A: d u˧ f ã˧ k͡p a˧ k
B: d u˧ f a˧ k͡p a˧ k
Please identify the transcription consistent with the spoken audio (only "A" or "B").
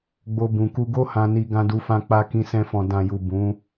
A